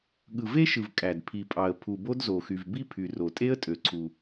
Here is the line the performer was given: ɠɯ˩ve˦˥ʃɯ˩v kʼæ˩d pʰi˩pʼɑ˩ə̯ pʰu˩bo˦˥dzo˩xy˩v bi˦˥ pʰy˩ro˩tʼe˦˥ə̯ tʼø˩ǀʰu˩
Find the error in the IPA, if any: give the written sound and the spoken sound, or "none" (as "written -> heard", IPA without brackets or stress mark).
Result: none